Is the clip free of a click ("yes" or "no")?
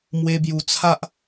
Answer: yes